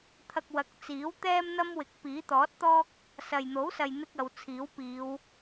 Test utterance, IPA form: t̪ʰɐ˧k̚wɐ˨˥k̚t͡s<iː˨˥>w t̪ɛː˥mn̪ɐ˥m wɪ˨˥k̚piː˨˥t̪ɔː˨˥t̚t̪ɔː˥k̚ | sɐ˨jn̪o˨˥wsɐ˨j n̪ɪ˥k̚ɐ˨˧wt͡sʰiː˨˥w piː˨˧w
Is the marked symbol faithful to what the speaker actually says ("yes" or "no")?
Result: yes